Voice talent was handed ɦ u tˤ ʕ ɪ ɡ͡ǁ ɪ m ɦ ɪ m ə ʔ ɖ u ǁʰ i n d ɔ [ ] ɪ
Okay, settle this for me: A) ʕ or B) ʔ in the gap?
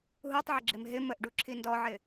A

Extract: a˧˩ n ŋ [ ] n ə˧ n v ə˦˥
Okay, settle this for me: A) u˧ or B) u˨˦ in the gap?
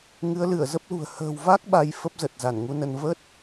A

